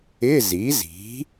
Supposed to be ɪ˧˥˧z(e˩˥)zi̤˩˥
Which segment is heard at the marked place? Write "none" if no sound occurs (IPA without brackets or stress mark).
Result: i˩˥